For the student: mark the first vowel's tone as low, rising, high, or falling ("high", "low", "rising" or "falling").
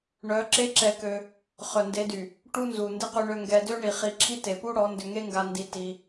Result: rising